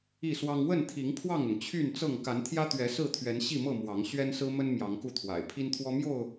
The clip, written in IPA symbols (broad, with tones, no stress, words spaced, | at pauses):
i˥˨swɑ˦ŋ wə˥˨nt̪ʰi˨˦ŋ pʰwɑ˥˨ŋʊ˩ŋt͡ɕʰy˥˨nt͡sɤ˥˨ŋ ka˨˦nt̪ʰjä˦t̪ɥɛ˨˦ sɹ̩˥˨t̪ʰɥɛ˨˦n ɕi˥˨mɤ˥˨ mwɑ˨˦ŋ ɕɥɛ˦nsɹ̩˦mə˦n mjɑ˨˦ŋku˥˨t̪ʰwa̰˨˩ɪ̯ pʰi˦nt̪ʰwɔ˦mjo˥˨ʊ̯